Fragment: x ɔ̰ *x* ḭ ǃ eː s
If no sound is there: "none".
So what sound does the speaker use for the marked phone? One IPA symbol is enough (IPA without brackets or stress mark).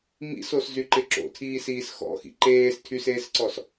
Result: x